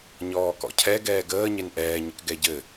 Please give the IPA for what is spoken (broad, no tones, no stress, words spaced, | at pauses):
ɲɔːkɔ̰cʰɛ ɡɛːɡəː ɲenʔɛːɲɘk ɡɛɟɘ